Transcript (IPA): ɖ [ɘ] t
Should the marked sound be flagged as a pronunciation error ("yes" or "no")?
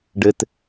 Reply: no